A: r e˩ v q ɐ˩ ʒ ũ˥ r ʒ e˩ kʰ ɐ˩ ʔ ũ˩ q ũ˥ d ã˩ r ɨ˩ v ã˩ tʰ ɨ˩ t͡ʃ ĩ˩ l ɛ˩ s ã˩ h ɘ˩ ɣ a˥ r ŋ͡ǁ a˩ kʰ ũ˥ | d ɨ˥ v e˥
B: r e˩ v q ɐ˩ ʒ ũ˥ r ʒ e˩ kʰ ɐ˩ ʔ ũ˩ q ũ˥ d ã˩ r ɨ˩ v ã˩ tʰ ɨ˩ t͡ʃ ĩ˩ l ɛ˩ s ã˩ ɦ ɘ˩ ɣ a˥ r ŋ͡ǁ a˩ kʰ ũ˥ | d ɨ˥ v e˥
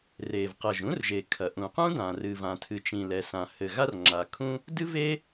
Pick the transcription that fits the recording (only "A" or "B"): A